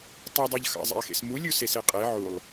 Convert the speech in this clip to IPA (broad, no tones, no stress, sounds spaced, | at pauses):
tˤ ʌ dˤ ɤ ʎ x ɑ̰ zˤ ḛ ɐ̯ x ḛ s m u lʲ u s e s e qʼ e ʕ u lˠ